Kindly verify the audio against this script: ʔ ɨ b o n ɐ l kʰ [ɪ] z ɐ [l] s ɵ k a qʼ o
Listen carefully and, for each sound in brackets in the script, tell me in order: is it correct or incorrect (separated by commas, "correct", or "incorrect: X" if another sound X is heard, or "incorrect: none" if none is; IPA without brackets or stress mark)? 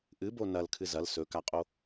incorrect: ɨ, correct